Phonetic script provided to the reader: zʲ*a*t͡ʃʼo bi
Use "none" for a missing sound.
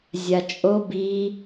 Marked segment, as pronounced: a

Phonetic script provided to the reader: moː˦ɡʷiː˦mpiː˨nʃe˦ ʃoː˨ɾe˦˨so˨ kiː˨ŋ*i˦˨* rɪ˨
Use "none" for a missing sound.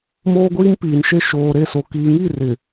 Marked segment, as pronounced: i˦˨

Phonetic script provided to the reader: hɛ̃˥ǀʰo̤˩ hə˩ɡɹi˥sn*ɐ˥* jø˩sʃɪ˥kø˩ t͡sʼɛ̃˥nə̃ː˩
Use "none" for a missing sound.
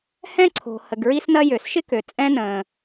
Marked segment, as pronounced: ɐ˥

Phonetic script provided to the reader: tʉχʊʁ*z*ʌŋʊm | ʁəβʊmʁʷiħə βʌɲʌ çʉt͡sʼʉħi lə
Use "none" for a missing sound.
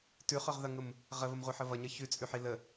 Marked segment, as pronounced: ð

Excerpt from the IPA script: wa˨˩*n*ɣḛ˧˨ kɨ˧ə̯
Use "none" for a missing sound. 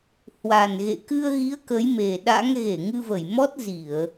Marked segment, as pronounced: n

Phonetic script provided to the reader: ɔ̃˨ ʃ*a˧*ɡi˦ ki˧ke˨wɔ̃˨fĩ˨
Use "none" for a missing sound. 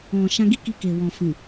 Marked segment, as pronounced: ã˧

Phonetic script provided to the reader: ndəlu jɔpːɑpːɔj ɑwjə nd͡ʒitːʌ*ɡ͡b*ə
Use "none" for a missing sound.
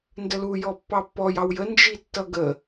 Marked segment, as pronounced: ɡ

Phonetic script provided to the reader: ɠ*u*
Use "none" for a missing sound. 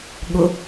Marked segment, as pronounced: ʊ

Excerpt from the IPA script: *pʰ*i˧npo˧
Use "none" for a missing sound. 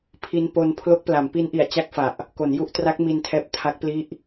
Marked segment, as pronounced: pʰ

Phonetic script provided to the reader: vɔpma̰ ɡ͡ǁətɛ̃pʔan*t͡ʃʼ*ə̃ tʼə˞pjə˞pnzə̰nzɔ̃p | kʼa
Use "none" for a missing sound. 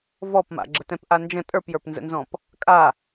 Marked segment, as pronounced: d͡ʒ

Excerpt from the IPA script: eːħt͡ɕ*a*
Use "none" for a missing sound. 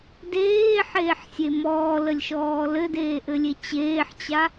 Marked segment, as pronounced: a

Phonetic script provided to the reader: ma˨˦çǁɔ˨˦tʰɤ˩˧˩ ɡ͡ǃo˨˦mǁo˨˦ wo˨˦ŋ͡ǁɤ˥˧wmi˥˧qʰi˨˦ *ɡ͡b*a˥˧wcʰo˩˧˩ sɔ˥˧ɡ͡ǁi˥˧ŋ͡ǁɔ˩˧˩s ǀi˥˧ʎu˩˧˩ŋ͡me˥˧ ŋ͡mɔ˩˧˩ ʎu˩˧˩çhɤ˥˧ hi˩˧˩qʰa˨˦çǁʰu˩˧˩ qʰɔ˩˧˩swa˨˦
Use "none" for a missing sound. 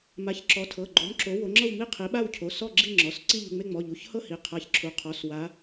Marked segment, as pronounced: ɓ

